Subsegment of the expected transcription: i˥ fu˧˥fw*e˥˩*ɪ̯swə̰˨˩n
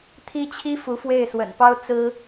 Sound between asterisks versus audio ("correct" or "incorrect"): correct